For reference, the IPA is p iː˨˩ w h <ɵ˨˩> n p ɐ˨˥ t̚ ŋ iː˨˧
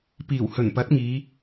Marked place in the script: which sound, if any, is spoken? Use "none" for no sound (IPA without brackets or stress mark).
ɵ˨˩